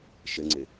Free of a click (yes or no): no